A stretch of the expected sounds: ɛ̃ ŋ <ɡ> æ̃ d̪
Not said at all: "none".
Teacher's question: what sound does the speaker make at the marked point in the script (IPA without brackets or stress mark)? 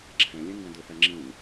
ɡ